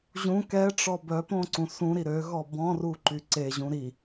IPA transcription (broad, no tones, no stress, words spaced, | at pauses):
ʑũ kɛʈ͡ʂɔ bœpõǀũ sũɾi ɾøɣɔ bɔ̃ruǃy ǀeʑũ ɾi